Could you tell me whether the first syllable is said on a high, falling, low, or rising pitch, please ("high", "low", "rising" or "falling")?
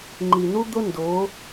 low